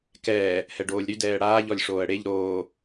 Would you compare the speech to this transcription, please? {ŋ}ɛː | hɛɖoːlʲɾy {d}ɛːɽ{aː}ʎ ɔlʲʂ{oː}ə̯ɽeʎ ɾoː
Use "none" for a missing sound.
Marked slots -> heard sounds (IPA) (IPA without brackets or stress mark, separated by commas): k, d, aː, oː